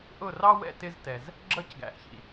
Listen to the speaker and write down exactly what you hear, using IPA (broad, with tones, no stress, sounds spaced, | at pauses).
ʔ ʊ˥˩ r ɑ˥ w ɛ̰˥˩ t ɪ˧ z t ɛ˩ z | ɡ͡ǁ ʌ˥˩ c ɡ æ̰˩˥ ʔ ç ḭ˩